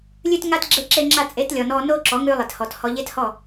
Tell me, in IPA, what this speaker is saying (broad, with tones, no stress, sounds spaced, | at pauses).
lʲ ʉ˧ t ŋ a˧ t ɡ͡ǁ e˦ ǁ e˦ ŋ͡ǁ a˦ t͡sʼ e˨˦ t lʲ ɔ˨ n ɔ˧ n o˦ ǁ ɔ˨˦ ŋ ʉ˧ lˠ e˨ t h ɔ˨ t h ɔ˧ ʎ e˦ t h ɔ˦˨